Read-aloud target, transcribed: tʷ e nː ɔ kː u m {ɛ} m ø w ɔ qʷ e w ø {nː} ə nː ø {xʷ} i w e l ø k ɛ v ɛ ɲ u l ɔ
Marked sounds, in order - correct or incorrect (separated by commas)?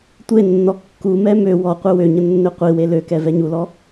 correct, incorrect, incorrect